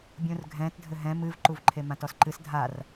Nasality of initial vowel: nasal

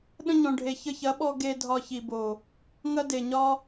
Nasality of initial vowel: nasal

